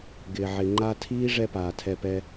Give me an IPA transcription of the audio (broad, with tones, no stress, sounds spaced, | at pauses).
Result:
ɡ ɪː˨ ʕ ɪ˨ ŋ͡ǃ a˦ tʰ iː˦ ʐ ɛ˦ p aː˨ tʰ ɛ˧ p ɛ˧